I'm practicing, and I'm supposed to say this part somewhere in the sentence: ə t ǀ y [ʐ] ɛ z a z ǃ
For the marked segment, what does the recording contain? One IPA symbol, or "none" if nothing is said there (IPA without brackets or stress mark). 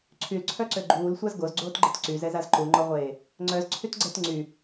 z